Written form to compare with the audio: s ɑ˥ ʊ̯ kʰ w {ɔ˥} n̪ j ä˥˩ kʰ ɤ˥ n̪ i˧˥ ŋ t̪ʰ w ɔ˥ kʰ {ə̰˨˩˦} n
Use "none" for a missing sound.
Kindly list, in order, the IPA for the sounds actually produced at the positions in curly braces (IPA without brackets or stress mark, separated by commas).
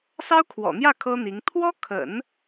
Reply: ɔ̰˨˩, ə̰˨˩˦